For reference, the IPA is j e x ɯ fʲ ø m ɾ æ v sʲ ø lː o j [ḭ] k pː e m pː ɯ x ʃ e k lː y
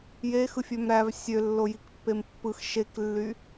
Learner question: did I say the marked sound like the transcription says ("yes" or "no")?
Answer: no